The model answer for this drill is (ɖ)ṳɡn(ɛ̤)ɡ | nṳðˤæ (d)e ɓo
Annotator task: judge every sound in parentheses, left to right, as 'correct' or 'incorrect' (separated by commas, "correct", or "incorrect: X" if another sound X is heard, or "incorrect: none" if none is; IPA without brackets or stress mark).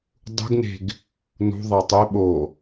incorrect: dˤ, incorrect: e̤, incorrect: tˤ